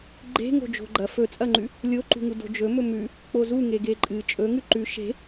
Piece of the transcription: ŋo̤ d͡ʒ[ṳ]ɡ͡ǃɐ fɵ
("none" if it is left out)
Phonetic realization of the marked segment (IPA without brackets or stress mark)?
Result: o̤